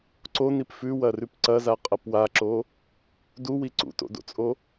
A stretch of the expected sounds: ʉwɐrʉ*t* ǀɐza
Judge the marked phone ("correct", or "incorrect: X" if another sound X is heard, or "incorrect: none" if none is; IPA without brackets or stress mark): incorrect: p